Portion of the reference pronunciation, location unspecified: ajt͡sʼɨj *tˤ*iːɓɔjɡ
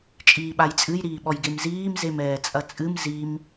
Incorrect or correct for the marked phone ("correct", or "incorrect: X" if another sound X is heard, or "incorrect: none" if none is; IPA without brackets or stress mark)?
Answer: incorrect: ɾ